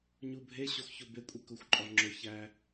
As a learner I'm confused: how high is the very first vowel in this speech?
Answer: high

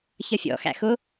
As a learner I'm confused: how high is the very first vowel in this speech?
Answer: mid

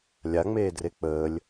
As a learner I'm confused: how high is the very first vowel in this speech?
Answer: low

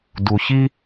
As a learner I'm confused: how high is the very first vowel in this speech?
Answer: high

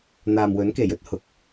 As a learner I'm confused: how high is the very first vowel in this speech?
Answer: low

